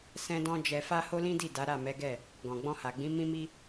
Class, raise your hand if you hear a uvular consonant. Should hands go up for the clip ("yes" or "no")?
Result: no